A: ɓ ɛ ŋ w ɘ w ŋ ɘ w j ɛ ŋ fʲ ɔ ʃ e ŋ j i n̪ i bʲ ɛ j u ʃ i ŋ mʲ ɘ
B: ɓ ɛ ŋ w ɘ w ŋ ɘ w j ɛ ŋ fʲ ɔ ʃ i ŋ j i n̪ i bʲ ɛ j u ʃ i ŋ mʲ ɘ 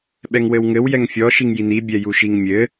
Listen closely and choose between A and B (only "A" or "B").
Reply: B